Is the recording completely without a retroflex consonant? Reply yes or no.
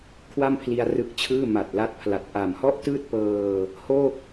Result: yes